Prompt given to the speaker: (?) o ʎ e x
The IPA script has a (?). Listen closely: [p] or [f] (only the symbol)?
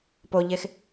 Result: p